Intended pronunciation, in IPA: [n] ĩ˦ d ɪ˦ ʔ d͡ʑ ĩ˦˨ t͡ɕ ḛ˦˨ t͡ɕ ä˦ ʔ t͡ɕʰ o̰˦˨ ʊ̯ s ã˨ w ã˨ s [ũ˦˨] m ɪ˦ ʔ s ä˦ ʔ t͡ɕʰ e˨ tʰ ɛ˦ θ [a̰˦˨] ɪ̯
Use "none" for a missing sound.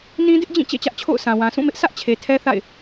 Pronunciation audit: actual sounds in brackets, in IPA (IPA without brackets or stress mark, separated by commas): n, ũ˦˨, a̰˦˨